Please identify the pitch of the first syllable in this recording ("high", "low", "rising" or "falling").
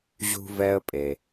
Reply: high